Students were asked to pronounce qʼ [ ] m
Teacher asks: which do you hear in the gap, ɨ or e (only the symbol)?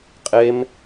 e